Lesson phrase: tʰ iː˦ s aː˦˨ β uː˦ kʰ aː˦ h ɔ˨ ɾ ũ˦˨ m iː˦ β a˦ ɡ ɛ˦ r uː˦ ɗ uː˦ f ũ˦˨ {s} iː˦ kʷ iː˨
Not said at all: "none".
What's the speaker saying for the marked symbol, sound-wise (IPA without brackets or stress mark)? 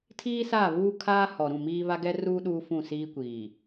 s